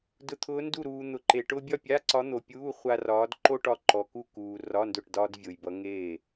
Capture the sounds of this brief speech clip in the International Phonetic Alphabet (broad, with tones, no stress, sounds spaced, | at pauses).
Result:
d ʊ˧˥ t̪ʰ ʊː˧˥ n d u˥˨ ɾ uː˧ n̪ ʊ˧ ǃ e˧ ʈ ʊː˥ bʲ ɒ˥˨ pʲ a˧˥˧ ǀ ɒ˧˥ n̪ o˧ pʲ uː˧˥˧ χʷ a˥ r ɒː˧˥ d ǃ o˥ ʈ ɒ˥˨ ǃ ɔ˧ k u˥˨ k uː˧ r ɒ˧˥˧ n d ʊ˥˨ ʈ d ɒː˥ d vʲ ʊː˧ j b ʌ˧˥ ŋ eː˥˨